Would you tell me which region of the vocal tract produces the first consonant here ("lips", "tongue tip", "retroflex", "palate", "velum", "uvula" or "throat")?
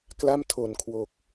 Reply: velum